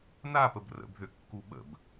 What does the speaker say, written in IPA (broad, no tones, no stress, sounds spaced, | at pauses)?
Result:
n a p ə b r ə̰ b ð ʏ kː u ɓ ə̰ b